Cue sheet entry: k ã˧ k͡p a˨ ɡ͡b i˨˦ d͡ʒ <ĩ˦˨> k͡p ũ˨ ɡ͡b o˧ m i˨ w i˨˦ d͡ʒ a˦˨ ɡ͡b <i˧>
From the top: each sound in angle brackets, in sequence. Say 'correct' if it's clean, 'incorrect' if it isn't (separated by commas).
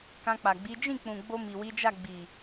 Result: correct, incorrect